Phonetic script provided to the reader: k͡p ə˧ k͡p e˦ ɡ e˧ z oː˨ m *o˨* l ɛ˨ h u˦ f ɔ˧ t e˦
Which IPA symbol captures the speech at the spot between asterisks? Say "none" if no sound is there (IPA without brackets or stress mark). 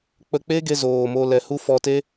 o˧